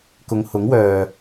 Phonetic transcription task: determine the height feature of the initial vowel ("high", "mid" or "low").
high